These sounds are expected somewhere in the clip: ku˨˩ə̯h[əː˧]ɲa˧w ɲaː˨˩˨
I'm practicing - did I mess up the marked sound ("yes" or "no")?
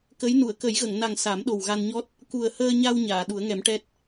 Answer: no